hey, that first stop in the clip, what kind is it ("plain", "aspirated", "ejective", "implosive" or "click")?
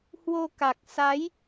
plain